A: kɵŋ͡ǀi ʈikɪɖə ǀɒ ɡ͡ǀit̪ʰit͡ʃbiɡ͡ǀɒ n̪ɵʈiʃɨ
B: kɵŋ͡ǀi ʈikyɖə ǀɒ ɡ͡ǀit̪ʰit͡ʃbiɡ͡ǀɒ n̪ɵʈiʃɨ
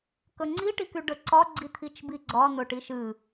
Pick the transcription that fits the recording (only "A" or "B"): B